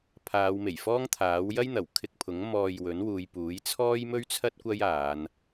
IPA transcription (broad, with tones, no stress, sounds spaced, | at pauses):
pʰ aː˨˧ w m e˨˩ j f ɔː˥ ŋ t̪ʰ aː˨˥ w j ɐ˥ j n̪ ɐ˨˩ w kʰ ɪ˧ k̚ pʰ ʊ˨˥ ŋ m ɔː˧ j w ɵ˨˥ n w uː˨˧ j p uː˨˥ j t͡sʰ ɔː˥ j m ɵ˥ ɥ t͡sʰ ɐ˥ t̚ kʷ ɐ˥ j aː˨˧ n